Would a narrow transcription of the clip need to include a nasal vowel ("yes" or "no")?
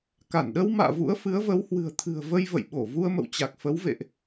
no